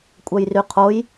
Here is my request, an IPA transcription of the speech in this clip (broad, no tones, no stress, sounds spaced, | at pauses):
kʷʼ œ j r y qʰ o j